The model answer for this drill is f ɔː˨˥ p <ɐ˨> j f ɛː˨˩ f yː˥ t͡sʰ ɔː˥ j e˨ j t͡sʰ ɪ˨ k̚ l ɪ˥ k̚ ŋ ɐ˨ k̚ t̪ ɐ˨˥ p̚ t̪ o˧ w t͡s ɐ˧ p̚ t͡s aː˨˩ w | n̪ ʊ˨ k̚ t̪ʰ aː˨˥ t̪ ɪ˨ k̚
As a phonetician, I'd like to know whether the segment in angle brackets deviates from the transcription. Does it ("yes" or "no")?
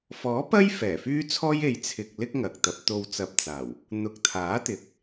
yes